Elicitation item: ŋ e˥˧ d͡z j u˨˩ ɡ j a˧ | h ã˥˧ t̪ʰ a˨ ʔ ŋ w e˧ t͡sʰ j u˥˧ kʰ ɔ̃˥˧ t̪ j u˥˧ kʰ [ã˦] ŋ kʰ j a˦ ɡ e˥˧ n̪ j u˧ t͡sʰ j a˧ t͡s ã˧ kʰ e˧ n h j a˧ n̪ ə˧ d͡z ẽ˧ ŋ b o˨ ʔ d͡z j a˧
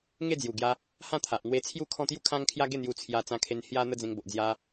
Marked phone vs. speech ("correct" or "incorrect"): correct